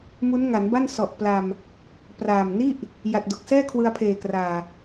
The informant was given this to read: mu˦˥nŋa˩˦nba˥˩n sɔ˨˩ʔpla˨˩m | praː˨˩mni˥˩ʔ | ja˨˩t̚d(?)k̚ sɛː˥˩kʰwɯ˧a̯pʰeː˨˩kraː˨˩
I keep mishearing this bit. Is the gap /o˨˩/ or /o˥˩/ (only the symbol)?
o˨˩